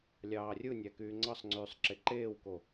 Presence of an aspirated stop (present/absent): absent